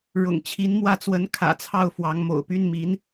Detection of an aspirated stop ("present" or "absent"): present